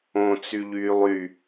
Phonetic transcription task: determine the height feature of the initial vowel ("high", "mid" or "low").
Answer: mid